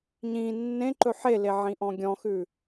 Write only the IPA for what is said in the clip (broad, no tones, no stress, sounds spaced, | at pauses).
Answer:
ɲ ĩ nː ẽ ǃ ɵ ħ e l e ʕ ĩ ʔ ɔ̃ ɡʲ ɔ̃ x ʉ